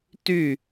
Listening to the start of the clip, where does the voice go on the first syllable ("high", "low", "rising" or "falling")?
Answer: falling